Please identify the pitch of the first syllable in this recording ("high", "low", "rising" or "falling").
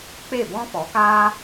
falling